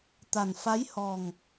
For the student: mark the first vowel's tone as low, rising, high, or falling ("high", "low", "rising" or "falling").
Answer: low